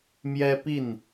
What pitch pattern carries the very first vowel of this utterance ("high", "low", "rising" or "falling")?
high